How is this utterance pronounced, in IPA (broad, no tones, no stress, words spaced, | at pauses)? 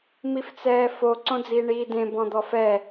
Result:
mift͡sɛːfo ǀõd͡ziːɳiːdẽ bɔ̃d̪ɔfɛ